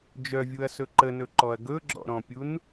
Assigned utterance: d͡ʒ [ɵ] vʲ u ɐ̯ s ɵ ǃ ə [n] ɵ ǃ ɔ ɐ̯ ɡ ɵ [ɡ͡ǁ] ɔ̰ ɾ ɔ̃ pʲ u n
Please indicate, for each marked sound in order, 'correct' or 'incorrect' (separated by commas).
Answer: incorrect, correct, correct